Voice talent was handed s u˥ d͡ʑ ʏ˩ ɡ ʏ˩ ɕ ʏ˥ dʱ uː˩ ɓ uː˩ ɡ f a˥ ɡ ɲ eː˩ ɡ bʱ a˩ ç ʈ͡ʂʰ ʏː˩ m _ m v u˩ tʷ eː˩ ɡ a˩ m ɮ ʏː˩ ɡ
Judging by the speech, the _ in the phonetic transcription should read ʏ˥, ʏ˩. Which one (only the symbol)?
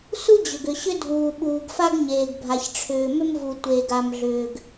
ʏ˥